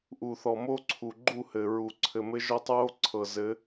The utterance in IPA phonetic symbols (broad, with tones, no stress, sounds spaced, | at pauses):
ʔ u˨ θ ɔ˨ m o˦ ǀʰ u˨ ɡ͡ǃ u˦˨ h ɘ˨ ɹ u˨ ǀʰ ɘ˨ m ɘ˦ ʒ ɔ˦ tˤ ɹ o˦ ǀʰ ɤ˨ z ɘ˨˦